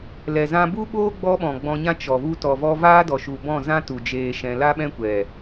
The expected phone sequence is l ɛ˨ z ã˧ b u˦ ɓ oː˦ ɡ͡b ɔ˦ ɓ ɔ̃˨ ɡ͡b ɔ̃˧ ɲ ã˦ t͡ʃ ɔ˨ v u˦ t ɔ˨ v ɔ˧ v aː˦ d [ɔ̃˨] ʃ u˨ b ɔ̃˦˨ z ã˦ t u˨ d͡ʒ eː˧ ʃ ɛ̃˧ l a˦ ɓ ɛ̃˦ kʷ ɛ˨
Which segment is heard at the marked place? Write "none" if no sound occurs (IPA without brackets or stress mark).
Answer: ɔ˨